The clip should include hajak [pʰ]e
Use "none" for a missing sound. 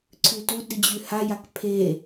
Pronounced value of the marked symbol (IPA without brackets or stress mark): pʰ